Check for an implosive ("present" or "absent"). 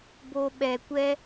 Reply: present